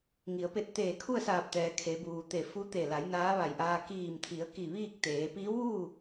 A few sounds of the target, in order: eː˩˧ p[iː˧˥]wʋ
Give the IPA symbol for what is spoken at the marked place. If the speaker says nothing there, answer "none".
iː˧˥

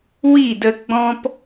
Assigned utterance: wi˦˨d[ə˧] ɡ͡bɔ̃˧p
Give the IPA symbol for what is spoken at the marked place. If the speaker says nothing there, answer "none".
ə˧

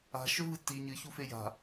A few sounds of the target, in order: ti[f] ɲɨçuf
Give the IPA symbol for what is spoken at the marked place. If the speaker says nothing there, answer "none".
none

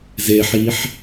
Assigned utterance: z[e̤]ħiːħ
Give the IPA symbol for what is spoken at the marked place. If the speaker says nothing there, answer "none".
e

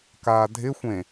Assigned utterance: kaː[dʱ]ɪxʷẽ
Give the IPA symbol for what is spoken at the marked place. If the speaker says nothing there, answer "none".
dʱ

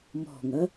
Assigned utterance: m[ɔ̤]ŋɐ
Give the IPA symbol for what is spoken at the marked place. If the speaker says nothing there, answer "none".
ɔ̤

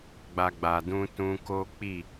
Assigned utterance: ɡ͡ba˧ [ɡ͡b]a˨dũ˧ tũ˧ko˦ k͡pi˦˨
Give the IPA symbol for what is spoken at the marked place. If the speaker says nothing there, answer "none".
ɡ͡b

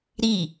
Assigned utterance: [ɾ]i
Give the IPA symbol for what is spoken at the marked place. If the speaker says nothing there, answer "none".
ɾ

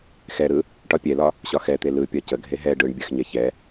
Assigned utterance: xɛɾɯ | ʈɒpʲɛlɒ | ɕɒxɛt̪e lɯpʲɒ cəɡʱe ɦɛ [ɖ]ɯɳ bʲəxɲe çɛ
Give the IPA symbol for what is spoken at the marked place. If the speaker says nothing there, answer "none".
ɖ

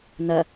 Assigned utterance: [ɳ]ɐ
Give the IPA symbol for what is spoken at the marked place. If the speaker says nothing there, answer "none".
n̪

